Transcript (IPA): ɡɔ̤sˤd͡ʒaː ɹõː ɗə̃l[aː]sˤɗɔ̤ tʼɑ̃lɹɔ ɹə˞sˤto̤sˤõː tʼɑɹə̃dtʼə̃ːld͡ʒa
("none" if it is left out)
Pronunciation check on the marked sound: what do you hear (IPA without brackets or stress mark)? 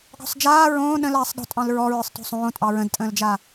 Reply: aː